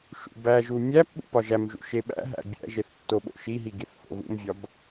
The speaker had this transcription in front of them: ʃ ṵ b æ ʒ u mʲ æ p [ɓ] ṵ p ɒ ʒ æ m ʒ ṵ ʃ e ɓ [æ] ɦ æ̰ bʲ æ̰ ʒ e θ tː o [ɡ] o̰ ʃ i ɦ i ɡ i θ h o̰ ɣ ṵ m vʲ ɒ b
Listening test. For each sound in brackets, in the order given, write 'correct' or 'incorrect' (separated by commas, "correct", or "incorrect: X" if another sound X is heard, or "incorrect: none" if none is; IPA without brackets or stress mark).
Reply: correct, incorrect: æ̰, incorrect: ɓ